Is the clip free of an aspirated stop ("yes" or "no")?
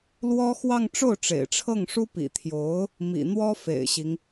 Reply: no